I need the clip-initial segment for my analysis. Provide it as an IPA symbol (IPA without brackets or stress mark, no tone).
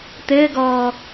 t̪